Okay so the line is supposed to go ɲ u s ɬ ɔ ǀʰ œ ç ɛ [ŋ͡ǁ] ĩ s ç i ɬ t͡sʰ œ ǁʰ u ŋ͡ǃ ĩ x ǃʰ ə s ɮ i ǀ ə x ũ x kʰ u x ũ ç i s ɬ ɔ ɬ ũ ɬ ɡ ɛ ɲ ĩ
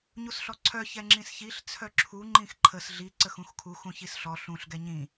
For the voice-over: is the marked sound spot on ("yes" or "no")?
yes